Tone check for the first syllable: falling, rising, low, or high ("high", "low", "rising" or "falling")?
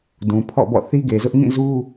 low